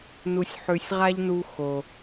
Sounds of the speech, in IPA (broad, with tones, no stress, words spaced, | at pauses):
nu˨sʲħʉ˨sʲʁa˦ʎnu˧ xo˨